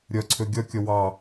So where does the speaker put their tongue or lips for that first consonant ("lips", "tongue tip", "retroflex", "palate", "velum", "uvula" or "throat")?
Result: tongue tip